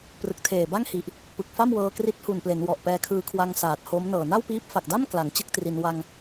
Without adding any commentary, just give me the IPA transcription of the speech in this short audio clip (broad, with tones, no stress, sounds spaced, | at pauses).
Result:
p r ɯ˨˩ k̚ tʰ eː˨˩ b a˥˩ ŋ h i˨˩ ʔ | p ɯ˨˩ k̚ f a˥˩ m w ɤː˧ k r i˦˥ t̚ h u˨˩ n p l e˩˦ n w ɔ˨˩ ʔ p ɛː˧ kʰ ɯː˧ kʰ w a˧ ŋ s aː˨˩ t̚ h o˦˥ m n ɤː˨˩ n a˥˩ w p iː˦˥ p̚ f a˨˩ k̚ d a˥˩ m k l a˩˦ ŋ t͡ɕ ɯ˥˩ k̚ t r i˧ n w a˧ ŋ